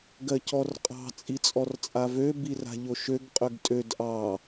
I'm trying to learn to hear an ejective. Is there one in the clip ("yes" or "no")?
yes